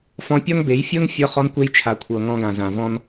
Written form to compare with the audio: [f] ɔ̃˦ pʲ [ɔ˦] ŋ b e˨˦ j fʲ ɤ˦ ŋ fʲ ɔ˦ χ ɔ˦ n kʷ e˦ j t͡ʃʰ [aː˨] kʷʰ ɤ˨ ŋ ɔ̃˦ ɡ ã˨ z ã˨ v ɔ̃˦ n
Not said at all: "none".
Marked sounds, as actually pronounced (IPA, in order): f, ɔ˦, a˨

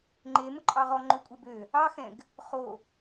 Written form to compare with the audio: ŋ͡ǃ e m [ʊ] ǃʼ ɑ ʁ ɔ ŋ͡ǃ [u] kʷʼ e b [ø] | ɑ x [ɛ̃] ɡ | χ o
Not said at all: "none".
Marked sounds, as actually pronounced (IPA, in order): ʊ, ø, ø, ɛ̃

